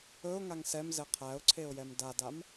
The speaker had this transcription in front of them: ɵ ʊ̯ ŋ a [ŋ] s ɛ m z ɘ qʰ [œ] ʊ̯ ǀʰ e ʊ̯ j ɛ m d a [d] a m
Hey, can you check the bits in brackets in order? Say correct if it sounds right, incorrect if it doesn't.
correct, incorrect, correct

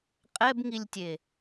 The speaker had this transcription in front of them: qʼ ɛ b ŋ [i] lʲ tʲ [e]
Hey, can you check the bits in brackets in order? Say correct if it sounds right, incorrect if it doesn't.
correct, correct

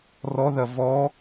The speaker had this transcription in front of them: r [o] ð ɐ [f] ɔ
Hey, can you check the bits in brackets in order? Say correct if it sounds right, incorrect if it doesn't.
incorrect, incorrect

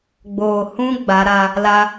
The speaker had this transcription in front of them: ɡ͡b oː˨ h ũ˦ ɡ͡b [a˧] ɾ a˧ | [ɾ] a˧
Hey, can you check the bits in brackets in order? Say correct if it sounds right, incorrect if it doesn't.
incorrect, incorrect

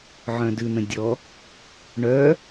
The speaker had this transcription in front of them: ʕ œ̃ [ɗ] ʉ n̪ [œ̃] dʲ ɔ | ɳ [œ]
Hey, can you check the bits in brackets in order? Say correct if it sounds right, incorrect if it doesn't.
incorrect, incorrect, correct

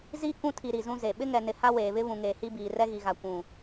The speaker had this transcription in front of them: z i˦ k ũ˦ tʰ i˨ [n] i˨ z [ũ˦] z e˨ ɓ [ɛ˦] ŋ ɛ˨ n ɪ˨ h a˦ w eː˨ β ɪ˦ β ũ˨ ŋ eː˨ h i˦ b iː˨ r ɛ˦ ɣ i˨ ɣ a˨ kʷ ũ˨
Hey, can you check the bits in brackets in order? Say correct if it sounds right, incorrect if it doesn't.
incorrect, correct, incorrect

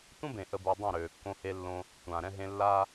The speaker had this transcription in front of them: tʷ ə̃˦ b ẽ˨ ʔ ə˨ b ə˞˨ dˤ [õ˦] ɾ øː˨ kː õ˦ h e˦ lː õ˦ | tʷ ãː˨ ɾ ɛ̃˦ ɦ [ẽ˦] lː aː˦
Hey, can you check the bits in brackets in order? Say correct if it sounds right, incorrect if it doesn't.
incorrect, correct

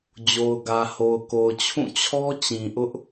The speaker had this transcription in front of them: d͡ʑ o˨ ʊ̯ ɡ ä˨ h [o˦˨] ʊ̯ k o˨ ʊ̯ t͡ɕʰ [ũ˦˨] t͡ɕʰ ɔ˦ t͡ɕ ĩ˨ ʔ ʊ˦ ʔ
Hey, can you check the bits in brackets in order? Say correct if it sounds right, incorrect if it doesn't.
incorrect, correct

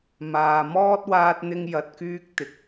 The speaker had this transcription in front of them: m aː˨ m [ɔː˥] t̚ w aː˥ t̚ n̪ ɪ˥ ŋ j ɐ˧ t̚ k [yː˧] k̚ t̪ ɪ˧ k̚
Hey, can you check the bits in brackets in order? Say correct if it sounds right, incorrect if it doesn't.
correct, incorrect

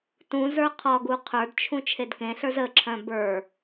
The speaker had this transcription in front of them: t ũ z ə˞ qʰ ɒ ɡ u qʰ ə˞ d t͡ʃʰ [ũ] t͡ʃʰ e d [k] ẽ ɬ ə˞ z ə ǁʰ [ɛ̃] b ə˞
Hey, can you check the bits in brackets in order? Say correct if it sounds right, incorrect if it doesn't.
correct, correct, incorrect

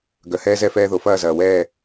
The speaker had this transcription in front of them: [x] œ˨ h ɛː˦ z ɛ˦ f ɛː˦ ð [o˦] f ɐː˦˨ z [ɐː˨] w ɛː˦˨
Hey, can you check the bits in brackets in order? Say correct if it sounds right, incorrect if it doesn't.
incorrect, incorrect, correct

